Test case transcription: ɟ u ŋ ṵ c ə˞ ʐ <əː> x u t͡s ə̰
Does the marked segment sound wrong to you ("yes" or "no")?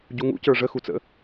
yes